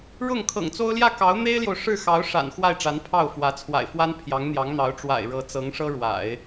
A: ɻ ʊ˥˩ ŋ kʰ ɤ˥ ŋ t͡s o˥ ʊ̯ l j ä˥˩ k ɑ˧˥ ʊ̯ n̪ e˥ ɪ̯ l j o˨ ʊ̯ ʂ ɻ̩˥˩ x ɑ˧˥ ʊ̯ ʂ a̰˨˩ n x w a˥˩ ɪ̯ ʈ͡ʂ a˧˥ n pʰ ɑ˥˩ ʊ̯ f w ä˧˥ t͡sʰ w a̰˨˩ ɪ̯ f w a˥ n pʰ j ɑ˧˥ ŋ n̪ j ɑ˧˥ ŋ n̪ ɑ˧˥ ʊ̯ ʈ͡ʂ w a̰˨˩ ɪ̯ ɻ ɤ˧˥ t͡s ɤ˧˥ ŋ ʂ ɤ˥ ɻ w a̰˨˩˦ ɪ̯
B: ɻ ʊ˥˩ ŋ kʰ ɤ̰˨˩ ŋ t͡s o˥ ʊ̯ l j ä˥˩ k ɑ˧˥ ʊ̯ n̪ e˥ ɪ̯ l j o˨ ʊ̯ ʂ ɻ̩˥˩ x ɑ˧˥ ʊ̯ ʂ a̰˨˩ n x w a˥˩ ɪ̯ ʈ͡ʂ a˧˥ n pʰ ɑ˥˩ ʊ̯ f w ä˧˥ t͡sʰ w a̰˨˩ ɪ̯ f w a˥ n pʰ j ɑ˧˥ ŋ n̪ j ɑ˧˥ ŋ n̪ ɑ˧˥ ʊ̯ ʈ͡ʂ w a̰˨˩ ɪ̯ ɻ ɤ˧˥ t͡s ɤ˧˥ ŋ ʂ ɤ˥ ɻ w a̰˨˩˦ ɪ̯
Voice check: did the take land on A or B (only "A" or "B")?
B